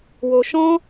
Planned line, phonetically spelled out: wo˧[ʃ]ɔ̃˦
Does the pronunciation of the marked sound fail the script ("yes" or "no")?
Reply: no